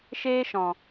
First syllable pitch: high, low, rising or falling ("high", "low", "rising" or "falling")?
high